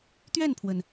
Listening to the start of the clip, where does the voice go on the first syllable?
falling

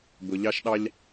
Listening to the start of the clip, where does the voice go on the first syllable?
low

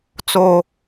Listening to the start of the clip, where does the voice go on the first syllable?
high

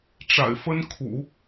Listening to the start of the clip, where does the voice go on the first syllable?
low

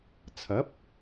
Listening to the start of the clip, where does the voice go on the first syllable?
rising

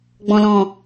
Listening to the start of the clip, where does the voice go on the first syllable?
low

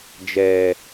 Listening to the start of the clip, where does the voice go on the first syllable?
low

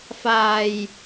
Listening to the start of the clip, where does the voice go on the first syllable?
low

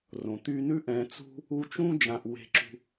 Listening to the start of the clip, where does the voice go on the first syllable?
low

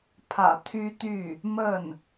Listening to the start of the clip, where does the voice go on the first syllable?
low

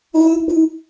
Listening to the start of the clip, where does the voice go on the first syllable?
high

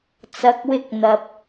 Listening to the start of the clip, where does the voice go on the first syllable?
rising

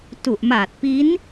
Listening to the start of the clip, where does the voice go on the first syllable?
low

